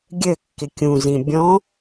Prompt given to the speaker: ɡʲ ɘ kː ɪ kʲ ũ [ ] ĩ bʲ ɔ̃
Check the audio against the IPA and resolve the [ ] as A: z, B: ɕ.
A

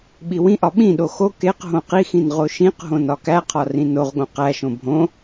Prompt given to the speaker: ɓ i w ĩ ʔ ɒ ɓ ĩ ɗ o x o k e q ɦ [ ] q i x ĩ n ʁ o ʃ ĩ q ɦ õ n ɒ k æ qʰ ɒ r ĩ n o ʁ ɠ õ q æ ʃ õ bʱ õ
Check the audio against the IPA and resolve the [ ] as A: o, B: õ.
B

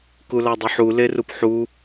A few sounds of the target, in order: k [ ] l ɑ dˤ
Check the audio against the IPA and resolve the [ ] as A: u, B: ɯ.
A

